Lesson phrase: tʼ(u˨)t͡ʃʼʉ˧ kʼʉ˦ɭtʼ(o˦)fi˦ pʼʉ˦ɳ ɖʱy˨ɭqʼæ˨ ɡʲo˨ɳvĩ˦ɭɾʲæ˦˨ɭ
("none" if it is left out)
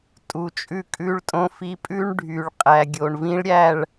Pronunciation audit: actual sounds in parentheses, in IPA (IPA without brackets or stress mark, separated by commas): u˨, õ˦